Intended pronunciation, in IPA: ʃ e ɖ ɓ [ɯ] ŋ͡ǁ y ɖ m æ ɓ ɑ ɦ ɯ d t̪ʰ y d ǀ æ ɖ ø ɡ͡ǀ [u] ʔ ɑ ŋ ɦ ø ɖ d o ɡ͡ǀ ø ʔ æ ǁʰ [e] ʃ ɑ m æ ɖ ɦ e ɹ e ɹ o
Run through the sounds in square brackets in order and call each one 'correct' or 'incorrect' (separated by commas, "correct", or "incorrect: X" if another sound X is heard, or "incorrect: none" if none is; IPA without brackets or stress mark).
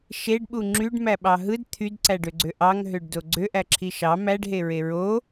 incorrect: u, incorrect: ø, incorrect: i